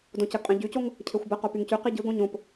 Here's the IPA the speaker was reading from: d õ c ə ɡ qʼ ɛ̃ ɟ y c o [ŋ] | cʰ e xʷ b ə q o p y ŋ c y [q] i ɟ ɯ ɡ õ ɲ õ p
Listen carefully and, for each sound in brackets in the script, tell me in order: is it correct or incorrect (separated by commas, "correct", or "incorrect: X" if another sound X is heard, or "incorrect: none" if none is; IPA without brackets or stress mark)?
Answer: correct, correct